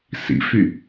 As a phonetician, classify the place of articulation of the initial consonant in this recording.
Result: alveolar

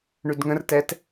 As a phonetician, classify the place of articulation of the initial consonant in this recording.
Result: retroflex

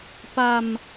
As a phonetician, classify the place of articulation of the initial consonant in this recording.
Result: labial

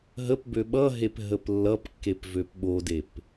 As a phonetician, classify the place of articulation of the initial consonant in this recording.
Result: glottal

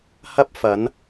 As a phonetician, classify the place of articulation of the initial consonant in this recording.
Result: glottal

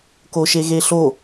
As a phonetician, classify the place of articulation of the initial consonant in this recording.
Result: velar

